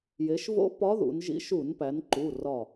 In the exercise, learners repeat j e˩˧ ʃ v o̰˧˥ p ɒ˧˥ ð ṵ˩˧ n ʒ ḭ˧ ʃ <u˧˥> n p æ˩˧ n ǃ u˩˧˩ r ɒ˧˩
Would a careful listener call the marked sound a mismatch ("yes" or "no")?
yes